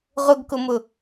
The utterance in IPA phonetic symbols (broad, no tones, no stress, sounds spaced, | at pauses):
ʁ ʊ ɡ k ʊ m ʊ